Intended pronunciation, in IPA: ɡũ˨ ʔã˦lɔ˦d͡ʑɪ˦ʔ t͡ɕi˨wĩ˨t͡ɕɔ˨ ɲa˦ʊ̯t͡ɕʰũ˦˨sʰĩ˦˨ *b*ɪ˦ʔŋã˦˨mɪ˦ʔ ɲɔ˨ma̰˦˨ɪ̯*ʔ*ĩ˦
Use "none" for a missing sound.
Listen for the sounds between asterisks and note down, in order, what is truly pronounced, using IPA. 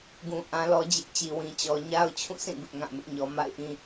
b, ʔ

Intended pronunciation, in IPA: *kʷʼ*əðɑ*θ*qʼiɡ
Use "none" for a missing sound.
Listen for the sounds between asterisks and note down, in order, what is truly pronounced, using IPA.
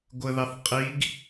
ɡʷ, θ

